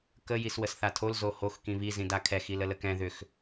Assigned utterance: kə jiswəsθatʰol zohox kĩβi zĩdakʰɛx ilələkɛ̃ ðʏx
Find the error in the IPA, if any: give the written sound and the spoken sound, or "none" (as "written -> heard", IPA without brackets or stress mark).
none